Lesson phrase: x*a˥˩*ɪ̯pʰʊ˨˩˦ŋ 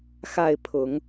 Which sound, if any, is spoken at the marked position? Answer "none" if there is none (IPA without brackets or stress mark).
a˥˩